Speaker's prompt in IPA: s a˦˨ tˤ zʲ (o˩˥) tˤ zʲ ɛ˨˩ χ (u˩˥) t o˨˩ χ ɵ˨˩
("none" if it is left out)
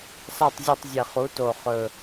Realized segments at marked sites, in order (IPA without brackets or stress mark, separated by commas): o˦˨, u˩˥